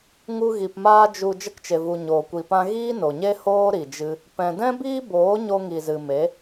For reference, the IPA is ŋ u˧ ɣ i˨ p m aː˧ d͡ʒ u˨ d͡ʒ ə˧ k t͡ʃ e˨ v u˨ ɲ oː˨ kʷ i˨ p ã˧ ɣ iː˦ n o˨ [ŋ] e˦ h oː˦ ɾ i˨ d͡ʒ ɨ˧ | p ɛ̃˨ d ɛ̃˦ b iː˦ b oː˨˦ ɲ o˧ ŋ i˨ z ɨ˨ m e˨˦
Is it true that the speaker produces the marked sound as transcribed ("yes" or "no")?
no